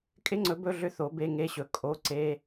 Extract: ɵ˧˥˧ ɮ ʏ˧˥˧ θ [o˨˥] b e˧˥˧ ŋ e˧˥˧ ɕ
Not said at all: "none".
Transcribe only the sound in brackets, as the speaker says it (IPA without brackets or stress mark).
o˨˥